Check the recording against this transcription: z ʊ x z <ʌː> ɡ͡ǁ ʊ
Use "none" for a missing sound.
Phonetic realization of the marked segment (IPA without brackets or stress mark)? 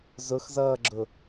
ʌː